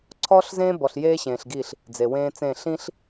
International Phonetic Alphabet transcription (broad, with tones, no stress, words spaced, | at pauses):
ǀʰɔː˦ɬzẽː˦ bɔ˨ɬjeː˦ɕẽː˨ɬɡiː˦˨ɬ | d͡ze˨wẽː˦t͡sẽ˦˨ ɬĩ˦ɬ